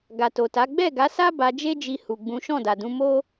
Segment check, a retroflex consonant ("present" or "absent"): absent